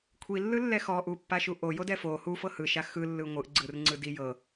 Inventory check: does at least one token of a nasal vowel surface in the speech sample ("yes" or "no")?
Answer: no